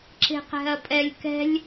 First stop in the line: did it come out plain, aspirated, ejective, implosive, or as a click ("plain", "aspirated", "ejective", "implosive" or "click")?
click